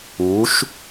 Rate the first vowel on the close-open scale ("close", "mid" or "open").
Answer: close